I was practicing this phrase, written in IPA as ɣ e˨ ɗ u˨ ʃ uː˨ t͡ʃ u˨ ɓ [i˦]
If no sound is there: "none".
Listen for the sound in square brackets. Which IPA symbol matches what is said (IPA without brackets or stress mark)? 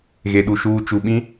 ĩ˦